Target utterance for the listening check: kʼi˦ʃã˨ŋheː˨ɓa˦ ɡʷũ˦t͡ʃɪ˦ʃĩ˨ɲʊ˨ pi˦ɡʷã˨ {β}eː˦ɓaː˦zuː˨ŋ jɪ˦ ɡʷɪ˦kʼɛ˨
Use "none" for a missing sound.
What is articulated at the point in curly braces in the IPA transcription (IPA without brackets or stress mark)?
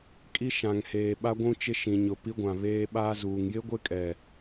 β